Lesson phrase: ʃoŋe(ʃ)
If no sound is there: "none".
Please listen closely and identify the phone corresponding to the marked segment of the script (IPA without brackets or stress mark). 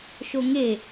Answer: none